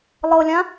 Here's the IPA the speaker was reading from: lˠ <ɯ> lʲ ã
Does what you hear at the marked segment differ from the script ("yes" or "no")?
yes